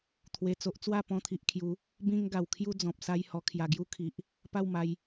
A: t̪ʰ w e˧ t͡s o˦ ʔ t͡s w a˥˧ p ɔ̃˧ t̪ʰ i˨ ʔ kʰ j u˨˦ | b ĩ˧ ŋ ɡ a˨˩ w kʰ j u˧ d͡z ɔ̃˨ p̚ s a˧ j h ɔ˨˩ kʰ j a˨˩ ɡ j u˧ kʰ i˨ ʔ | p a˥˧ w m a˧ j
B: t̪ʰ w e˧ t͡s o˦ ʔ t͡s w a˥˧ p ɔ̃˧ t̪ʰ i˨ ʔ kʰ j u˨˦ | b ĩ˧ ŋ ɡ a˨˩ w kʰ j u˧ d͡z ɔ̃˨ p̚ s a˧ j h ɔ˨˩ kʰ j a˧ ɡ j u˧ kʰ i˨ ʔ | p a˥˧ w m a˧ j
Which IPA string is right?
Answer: A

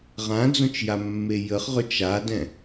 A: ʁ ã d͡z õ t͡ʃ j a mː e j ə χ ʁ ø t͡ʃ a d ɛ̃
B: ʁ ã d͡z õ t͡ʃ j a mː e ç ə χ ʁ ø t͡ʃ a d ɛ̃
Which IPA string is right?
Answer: A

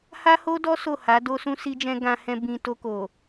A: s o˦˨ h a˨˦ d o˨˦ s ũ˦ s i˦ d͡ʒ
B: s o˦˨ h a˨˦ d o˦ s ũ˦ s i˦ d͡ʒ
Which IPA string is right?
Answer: B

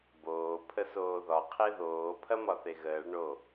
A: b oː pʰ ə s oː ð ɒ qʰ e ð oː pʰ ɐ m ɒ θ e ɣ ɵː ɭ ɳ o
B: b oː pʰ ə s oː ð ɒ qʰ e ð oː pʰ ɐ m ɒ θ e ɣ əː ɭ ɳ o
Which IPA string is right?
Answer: B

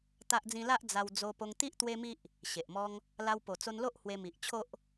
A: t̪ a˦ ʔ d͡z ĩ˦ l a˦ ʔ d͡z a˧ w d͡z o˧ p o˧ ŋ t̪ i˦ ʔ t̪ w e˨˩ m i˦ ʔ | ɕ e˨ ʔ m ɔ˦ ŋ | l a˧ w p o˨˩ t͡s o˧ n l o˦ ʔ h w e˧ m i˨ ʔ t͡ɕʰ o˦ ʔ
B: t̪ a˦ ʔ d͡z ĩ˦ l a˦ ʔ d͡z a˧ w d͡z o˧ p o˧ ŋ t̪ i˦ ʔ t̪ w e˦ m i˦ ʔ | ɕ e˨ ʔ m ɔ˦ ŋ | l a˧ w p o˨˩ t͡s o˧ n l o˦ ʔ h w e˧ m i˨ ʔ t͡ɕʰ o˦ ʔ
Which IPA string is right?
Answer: B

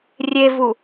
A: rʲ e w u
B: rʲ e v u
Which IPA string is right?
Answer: B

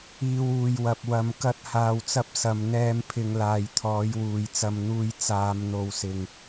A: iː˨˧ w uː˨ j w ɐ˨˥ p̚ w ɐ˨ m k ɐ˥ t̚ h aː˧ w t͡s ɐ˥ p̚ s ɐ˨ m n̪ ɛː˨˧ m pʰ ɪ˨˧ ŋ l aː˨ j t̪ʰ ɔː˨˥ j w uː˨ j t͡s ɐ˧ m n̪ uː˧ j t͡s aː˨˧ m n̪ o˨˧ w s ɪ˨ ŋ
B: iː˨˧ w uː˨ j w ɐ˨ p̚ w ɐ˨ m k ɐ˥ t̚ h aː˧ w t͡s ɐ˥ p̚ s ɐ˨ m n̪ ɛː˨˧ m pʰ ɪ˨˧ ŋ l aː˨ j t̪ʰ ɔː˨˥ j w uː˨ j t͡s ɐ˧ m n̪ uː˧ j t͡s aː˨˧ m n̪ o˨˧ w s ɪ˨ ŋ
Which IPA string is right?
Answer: B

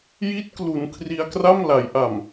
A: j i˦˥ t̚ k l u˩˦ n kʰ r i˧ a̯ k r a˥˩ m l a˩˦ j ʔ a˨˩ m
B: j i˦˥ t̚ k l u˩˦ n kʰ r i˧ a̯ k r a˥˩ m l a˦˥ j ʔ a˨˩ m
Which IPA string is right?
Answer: A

